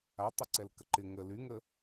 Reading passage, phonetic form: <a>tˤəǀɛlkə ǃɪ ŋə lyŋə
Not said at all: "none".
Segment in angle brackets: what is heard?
a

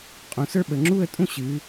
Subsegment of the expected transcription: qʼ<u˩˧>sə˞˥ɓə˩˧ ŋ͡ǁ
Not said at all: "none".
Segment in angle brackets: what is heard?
ũ˩˧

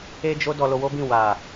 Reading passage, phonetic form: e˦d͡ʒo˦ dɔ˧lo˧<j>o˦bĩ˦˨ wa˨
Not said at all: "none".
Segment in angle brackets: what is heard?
w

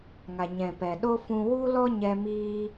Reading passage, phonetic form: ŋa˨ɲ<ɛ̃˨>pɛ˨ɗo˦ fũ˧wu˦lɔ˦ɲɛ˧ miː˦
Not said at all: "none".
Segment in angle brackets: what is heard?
ɛ̃˨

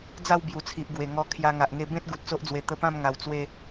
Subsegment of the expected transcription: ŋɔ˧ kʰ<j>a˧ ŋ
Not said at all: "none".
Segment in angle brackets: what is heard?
j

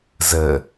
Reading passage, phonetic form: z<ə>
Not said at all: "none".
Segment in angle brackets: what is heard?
ə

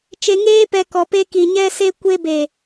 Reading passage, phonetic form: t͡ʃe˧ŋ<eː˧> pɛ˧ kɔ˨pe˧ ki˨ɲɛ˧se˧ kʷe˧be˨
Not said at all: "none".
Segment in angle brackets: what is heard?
eː˦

